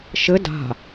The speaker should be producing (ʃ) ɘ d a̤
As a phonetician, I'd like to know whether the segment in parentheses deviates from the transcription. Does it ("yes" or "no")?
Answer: no